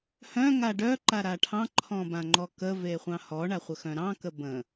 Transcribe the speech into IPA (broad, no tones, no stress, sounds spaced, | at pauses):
h œ̃ ŋ a ɖ œ ǃ a ɾ a ʈʰ ɑ̃ ǃʰ ɔ̃ b ã ŋ͡ǃ ɔ k ə v e χʷ ɑ̃ h ɔ ɳ a χʷ ə x œ̃ ɾ ɑ̃ k ə b ə̃